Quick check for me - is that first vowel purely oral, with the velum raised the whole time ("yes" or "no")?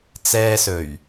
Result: yes